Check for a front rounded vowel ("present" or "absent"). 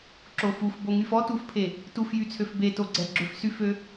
present